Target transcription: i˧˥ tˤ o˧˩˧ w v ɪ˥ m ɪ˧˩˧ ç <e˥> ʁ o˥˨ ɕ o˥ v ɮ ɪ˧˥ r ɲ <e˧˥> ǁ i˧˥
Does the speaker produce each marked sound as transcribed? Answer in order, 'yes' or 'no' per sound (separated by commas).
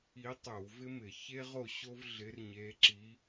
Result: yes, yes